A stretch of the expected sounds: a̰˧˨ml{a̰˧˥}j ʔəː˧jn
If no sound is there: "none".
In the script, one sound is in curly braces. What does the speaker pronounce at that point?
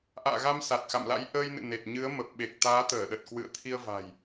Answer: a̰˧˥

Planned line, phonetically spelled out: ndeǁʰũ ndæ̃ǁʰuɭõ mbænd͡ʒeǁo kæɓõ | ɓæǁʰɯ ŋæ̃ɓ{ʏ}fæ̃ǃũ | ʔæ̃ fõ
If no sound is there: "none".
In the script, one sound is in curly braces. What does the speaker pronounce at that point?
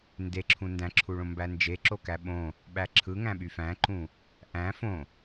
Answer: y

